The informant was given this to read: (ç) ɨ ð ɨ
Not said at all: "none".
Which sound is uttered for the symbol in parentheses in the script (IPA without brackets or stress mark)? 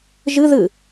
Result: ʒ